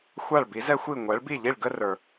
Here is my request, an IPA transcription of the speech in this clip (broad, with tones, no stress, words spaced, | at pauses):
xʷa˥˩ɭbi˩˥zɛ˥xʷi˥˩ ŋʷɛ˩˥ɭbi˥˩ʎi˥˩ɭ ɡə˥ rə˞˩